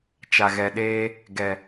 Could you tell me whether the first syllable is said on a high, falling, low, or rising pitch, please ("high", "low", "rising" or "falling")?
low